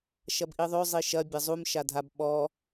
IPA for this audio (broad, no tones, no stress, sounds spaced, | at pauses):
ʃ ɐ b ʔ i ðˤ ø zˤ i ʃ ɐ bʲ ɐ zˤ u m ʃ a dʱ a b ɓ ɔ